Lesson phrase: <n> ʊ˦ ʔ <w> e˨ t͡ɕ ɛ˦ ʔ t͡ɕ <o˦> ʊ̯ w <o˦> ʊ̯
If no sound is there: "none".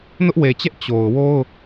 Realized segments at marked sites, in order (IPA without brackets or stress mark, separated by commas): n, w, o˨, o˦